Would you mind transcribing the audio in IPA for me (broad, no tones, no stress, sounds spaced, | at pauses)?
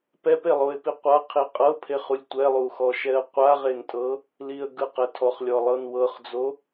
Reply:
p ɛ p e lˠ o ɪ̯ p i qʷ a qʰ i qʼ ɤ pʰ e χ u lʲ tʷ ɛ lˠ u x ɔ ʃ ɛ ə̯ qʷ a ʁ e n tʼ ɤ | l i ə̯ ɡ ɯ q ɛ tʰ ɔ χ lʲ ɔ lˠ ɤ n w ɤ χ d͡z o